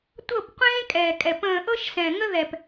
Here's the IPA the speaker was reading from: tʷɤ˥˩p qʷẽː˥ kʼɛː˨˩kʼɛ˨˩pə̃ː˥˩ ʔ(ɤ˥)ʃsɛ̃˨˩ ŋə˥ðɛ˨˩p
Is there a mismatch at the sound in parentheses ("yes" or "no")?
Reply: no